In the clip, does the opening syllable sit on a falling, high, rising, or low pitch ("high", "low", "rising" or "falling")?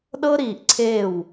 high